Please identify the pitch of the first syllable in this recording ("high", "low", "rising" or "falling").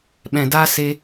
low